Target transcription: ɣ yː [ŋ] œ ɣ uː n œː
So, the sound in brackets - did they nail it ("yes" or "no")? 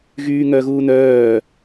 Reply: yes